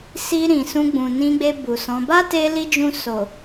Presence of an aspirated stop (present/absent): absent